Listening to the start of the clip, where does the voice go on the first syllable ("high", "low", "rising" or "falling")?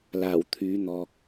low